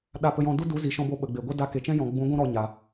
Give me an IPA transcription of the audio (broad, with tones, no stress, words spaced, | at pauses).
ɗa˨pə˨jɔ̃˨ du˦ du˨˦zi˨ʃɔ̃˧bo˧ ɓə˨ɡ͡be˨ ɡʷə˦ da˧ ke˨t͡ʃɛ̃˦jɔ̃˨ ɡ͡bũ˨˦ ɡʷũ˦ɾɔ˧ɲa˨